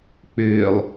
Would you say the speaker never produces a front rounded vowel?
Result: no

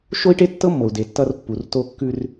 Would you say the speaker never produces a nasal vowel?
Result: yes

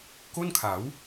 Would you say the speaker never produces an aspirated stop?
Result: no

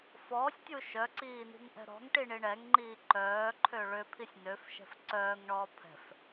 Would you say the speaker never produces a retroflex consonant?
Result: no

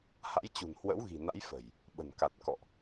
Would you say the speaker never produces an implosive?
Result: no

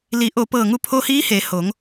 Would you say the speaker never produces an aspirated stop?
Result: no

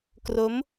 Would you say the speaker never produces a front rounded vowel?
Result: yes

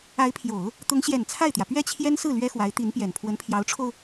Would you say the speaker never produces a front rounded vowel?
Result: yes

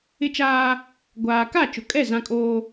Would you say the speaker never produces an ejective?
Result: no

